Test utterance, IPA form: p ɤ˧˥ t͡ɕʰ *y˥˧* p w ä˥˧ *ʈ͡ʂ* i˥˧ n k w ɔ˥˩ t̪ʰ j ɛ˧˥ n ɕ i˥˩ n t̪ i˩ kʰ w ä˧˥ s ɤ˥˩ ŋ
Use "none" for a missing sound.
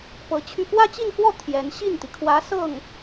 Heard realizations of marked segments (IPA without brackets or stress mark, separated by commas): y˥˧, t͡ɕ